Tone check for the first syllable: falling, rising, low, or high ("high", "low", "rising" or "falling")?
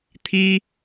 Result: high